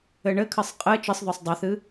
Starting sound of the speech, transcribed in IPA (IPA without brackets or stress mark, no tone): ɘ